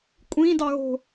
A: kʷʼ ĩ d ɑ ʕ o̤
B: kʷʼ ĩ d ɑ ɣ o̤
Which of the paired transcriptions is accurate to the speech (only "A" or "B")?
B